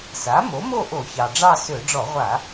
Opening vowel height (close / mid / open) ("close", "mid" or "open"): open